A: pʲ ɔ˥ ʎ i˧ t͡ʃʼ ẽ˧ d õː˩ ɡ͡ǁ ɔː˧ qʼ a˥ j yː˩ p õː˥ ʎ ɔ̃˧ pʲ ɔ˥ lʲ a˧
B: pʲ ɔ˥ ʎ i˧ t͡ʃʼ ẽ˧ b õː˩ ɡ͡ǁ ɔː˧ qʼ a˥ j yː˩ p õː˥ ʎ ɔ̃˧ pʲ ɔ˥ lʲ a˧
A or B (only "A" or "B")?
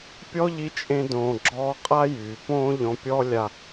A